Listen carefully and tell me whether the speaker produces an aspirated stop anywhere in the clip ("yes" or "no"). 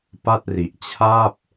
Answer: yes